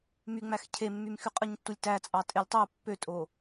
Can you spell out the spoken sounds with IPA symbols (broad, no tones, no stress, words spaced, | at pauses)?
myŋ͡mæx cʰemːymxy qʼɯɲtːulʲtæt͡sʼɑ tʼelʲtˤo pːøtʼo